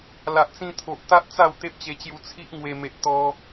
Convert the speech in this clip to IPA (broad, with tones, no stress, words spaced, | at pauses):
la˨ʔt͡sĩ˧t̪ʰo˨ʔ t̪a˦ʔ t͡sa˥˧w t̪e˦p̚t͡ɕe˧t͡ɕju˧ t͡sʰi˦ʔŋwe˧ me˨ʔt̪ɔ˧